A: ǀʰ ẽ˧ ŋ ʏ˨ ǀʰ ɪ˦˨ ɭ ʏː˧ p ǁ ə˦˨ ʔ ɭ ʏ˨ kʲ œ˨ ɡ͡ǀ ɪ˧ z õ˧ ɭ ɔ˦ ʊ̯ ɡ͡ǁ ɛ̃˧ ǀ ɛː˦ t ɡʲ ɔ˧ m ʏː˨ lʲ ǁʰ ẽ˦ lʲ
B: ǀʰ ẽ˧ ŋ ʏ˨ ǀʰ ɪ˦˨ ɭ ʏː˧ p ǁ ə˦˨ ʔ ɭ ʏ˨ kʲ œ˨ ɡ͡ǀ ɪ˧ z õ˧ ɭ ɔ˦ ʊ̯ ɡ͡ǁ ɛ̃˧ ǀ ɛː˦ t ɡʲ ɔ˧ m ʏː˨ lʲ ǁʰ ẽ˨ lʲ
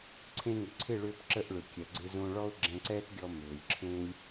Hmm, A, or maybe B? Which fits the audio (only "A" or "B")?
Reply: A